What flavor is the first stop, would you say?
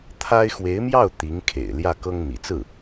aspirated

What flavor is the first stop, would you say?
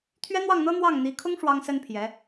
aspirated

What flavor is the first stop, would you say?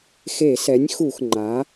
click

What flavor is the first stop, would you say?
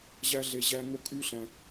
ejective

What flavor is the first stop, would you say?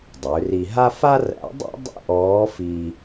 plain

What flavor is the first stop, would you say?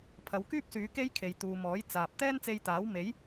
aspirated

